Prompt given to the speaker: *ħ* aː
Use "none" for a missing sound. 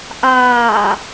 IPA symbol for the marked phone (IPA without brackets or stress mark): ʔ